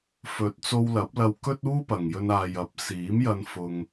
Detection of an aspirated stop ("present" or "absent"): absent